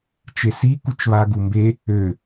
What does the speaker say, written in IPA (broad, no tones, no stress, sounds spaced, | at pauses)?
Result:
t͡ʃ e s i k u t͡ʃ β a ɡ u m b e | ø